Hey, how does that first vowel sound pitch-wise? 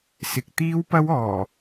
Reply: low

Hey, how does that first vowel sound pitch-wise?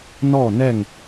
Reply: falling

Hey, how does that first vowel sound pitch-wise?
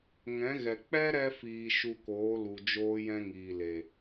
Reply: rising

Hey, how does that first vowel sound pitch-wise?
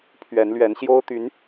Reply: rising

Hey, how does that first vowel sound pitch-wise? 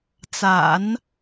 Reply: low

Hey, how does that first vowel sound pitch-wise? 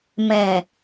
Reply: low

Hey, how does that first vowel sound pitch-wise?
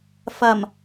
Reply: low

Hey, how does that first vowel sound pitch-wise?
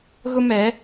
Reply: high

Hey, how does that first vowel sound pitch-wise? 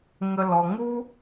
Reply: low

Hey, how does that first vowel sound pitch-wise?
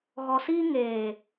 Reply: low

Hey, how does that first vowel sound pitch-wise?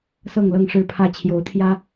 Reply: falling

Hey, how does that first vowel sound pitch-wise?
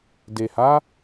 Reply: low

